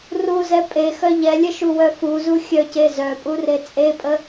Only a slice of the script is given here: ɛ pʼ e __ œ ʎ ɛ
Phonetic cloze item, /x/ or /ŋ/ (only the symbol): x